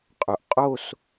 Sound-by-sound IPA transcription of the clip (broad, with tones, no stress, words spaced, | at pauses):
qʼɵ˩˧ʔqʼo˥˧s